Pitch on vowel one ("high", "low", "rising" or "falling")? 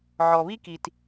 low